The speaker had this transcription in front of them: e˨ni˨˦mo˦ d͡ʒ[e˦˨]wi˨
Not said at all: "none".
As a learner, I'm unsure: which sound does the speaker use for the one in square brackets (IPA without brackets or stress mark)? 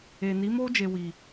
e˧